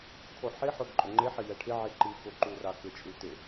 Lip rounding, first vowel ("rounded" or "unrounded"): rounded